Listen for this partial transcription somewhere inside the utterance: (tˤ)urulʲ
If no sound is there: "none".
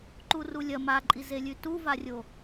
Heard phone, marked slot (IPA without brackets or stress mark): ǃ